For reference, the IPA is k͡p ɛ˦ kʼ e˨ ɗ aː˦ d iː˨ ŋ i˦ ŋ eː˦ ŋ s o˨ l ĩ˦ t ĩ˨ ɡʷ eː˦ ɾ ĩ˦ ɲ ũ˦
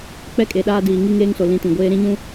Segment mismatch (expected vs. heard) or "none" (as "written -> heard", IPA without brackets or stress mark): none